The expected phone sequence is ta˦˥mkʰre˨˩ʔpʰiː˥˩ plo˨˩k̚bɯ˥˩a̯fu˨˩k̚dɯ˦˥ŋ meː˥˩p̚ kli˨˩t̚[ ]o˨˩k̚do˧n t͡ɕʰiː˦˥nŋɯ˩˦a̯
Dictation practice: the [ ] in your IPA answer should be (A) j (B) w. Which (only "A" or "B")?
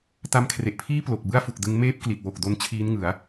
B